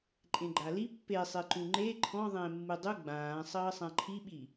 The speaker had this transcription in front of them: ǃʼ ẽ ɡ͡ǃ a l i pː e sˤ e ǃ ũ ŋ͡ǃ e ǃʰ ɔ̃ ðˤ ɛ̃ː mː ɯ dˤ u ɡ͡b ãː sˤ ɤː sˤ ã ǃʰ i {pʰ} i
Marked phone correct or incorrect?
incorrect